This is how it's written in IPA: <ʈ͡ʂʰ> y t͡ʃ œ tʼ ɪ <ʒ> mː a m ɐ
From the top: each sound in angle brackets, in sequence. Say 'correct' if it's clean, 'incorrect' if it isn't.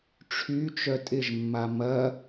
correct, correct

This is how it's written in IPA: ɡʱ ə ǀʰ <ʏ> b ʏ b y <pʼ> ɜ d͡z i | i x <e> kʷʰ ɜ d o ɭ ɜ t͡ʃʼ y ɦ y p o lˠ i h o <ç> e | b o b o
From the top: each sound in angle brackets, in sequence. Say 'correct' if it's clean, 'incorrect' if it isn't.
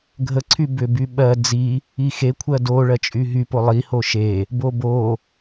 incorrect: y, incorrect: ɓ, correct, incorrect: ʃ

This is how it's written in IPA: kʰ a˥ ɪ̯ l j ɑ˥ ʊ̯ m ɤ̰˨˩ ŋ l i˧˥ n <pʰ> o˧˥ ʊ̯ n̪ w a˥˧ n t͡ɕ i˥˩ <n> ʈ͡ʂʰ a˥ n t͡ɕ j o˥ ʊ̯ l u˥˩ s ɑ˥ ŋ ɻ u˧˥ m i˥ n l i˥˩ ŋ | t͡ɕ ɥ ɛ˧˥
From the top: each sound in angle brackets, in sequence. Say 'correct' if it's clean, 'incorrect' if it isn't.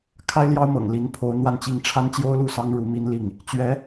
correct, incorrect: ŋ

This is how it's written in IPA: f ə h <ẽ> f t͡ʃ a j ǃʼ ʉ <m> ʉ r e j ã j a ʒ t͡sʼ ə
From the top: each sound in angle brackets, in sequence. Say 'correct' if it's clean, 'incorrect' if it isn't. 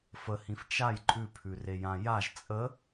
incorrect: ĩ, incorrect: pʰ

